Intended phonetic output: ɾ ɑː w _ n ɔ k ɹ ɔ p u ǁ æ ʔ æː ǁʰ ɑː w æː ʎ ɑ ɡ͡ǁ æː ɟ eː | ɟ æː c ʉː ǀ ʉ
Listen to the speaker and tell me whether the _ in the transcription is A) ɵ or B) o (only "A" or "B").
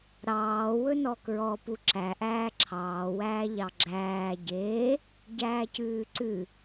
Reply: A